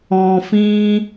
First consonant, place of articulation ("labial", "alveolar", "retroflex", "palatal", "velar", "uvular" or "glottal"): labial